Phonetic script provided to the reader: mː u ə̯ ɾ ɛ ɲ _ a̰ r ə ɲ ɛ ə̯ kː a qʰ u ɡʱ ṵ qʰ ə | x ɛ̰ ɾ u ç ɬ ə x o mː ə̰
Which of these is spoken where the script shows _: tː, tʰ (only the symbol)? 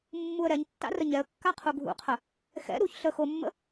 tː